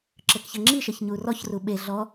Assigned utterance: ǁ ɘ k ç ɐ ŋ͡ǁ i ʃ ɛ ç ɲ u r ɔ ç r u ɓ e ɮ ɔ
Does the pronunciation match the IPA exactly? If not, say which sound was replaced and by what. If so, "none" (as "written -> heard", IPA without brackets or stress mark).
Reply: none